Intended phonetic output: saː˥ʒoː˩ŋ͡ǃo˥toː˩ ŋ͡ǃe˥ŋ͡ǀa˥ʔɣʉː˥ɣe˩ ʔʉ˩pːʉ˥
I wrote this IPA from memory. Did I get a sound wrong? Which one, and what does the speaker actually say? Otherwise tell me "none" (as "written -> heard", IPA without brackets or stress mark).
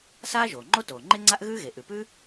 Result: pː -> p